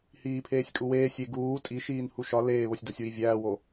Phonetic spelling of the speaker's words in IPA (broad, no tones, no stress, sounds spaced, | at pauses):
h iː pʰ eː sʲ kʼ u w eː sʲ e ɡ uː tʼ i ʃ iː n h u ʃ ɒ l eː β o sʲ d ɒ sʲ w i vʲ æː w o